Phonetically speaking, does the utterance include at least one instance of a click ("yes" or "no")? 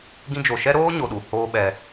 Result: no